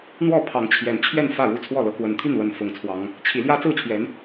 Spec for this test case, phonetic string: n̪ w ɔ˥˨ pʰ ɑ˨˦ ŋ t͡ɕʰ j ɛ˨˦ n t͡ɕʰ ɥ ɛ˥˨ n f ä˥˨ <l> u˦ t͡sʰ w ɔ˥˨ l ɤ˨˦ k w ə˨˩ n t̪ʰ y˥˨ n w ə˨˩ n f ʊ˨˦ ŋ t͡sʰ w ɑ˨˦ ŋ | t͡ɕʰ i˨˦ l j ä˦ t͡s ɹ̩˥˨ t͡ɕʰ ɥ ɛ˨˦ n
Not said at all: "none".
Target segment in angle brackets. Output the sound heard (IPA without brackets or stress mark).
ɻ